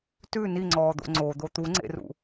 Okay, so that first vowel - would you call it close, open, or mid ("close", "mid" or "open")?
close